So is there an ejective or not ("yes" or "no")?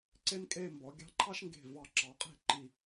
yes